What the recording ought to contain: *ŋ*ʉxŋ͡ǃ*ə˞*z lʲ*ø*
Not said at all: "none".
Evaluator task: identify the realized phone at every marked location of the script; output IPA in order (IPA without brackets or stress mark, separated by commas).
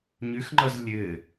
ɲ, ʌ, ɘ